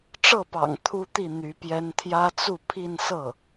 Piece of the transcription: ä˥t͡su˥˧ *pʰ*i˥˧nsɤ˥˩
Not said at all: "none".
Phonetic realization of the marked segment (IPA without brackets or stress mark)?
pʰ